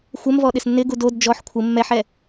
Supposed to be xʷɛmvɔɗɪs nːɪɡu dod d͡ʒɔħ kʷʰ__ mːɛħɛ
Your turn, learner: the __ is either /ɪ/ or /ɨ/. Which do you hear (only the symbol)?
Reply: ɪ